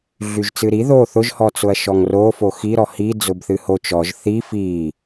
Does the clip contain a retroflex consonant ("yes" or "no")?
no